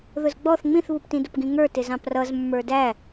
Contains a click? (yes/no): no